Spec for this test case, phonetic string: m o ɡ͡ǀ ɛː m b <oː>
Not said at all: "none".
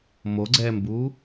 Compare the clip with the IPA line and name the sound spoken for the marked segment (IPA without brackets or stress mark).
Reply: uː